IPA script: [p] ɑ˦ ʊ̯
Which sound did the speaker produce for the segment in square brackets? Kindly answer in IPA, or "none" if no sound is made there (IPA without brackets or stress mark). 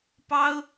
p